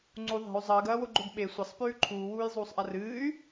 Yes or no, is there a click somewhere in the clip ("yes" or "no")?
yes